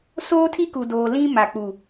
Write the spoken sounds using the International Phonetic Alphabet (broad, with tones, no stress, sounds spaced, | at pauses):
s oː˦ tʰ i˦ k u˨ d oː˨ l ĩ˦ m a˨ k͡p u˨